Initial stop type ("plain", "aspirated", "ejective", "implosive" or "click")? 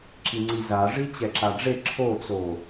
click